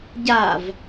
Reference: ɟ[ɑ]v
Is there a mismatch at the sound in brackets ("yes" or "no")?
yes